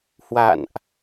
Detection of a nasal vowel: absent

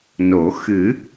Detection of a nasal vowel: absent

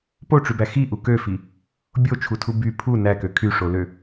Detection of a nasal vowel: absent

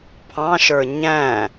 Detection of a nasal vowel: present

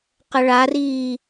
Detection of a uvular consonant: present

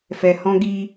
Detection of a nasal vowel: present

